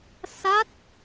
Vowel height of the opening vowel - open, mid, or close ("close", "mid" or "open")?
open